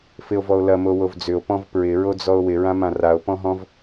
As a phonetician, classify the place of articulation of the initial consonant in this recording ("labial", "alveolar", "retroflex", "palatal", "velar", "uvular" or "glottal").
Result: labial